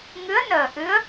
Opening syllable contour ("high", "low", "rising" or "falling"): rising